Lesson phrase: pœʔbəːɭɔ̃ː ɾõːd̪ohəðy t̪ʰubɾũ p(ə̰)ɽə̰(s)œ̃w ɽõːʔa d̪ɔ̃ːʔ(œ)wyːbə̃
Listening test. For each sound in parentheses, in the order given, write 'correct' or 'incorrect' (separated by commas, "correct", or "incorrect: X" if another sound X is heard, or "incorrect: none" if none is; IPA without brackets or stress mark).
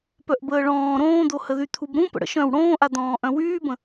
correct, incorrect: ʃ, incorrect: œ̃